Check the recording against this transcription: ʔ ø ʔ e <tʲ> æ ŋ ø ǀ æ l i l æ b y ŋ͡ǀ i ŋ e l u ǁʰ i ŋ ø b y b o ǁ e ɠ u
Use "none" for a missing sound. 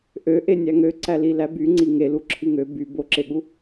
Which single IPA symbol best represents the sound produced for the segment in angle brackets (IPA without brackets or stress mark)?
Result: nʲ